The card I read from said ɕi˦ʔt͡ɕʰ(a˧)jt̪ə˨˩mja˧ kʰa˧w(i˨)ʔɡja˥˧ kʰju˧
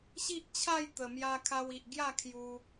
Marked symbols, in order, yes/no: no, yes

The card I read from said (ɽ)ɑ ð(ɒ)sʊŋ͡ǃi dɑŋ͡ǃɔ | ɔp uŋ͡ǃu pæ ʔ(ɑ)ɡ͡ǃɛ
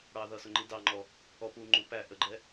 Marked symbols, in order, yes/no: yes, no, no

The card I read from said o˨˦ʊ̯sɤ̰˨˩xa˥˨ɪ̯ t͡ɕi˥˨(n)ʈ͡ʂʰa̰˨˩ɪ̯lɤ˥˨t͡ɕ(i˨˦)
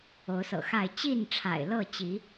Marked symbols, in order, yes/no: yes, yes

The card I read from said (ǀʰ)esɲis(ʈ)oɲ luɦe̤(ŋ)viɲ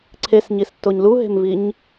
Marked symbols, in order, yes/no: yes, no, no

